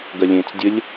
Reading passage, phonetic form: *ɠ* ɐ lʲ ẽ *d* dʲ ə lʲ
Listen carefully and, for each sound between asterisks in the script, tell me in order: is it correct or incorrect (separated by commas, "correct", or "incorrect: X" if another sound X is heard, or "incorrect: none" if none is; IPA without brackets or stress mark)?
incorrect: ɡ, incorrect: t͡s